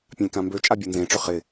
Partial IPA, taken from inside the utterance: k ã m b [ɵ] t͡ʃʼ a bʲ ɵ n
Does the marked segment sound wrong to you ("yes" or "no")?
yes